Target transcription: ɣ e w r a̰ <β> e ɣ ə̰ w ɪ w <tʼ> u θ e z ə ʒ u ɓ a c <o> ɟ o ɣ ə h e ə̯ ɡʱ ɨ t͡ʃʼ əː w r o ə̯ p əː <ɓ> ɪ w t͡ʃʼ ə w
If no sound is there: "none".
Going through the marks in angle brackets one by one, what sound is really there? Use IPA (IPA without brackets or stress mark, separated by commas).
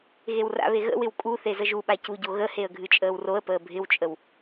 β, kʼ, u, bʱ